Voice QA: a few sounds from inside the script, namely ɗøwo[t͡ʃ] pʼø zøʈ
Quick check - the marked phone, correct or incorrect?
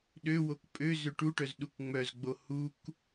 incorrect